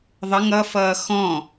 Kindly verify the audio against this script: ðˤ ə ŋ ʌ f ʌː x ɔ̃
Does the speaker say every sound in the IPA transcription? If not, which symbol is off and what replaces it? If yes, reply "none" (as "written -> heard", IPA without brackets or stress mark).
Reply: none